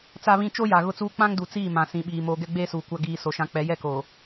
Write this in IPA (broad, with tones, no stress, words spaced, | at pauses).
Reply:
t͡sa˦βĩ˦ t͡ʃo˦ja˨ ɣʊ˦t͡suː˦ k͡pã˦ŋdu˨ t͡siː˦˨mã˨ sĩ˨ɓiː˨ moː˨ ɡɛ˦ɡ͡beː˦suː˨ kʷa˦ ɡiː˨ so˨ʃã˨k͡pɛ˨˦ jɛ˦ko˨